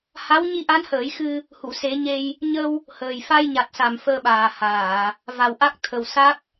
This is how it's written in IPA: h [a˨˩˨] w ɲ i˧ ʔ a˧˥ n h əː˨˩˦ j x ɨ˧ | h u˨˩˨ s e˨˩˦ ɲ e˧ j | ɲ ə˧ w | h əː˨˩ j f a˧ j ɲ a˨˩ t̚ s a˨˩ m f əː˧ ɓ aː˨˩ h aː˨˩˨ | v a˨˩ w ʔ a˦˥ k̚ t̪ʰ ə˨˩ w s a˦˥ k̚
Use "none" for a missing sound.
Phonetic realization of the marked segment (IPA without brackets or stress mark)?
a˧˥